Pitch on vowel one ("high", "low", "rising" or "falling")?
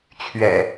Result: low